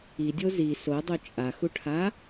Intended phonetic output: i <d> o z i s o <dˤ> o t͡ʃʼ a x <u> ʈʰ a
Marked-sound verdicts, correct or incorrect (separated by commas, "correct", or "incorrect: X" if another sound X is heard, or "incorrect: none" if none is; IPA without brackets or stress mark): incorrect: dʲ, correct, correct